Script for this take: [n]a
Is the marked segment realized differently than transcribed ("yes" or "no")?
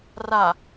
yes